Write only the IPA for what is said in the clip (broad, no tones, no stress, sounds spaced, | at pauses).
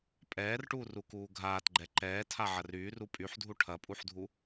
pʼ ɛː r ʈ uː r u k uː ɡʱ aː t ɡ͡ǃ ɛ ǃ ɛː tʰ a ʕ ɐ r yː r u pʼ y ħ dʱ u ʈʰ ɐ pʼ u ħ dʱ u